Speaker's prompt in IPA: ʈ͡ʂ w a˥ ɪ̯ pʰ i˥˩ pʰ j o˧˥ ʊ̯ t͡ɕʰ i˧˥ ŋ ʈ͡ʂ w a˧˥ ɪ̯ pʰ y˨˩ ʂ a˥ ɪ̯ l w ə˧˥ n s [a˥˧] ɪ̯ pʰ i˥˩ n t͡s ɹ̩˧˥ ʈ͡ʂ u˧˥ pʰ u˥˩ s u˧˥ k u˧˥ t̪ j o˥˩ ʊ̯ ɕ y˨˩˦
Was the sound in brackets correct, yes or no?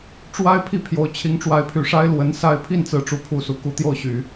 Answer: yes